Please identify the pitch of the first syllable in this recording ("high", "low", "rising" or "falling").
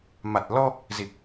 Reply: low